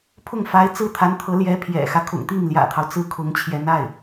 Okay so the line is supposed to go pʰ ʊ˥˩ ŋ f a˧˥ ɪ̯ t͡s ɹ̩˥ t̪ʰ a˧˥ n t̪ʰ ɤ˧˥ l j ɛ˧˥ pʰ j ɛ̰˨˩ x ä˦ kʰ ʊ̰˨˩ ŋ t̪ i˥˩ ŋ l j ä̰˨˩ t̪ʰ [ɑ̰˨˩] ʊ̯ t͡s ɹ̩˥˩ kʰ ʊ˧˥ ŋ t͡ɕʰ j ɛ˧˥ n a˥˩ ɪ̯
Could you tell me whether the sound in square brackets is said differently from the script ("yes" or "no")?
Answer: yes